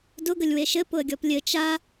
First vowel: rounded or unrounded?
rounded